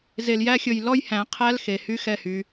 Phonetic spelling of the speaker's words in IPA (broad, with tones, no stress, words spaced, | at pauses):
ze˧ljæ˦xʲɵ˧j lɔ˦jhæ̃˨˦qʰæ˦lxe˨ hy˦xɛ˦˨ hy˧